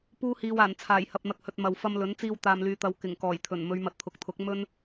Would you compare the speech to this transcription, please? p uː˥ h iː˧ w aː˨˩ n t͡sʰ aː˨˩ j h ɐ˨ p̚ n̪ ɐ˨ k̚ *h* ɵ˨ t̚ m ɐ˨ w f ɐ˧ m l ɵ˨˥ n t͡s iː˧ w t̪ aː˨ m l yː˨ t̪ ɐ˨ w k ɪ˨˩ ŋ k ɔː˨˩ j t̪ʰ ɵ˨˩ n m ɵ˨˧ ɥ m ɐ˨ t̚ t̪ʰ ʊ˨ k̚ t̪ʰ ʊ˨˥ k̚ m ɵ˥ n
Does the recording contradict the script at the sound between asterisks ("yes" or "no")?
no